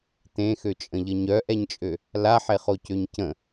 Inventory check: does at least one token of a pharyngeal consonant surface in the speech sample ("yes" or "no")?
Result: yes